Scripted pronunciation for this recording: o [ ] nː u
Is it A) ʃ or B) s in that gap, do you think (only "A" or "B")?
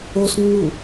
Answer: B